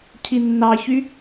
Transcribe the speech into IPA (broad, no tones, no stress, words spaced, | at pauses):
cʰinːɑçy